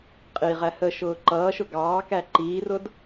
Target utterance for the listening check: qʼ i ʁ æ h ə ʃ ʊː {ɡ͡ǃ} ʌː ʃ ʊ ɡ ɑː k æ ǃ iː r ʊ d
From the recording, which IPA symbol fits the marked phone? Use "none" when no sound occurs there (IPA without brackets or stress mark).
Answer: ǃ